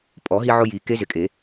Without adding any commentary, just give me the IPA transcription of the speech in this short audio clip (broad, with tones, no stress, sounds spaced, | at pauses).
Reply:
pʼ ɔ˨˩˦ ɦ i˧ ʕ ʊ˧ j i˨˩˦ k e˧˥ z ɪ˨˩˦ kʼ e˨˩˦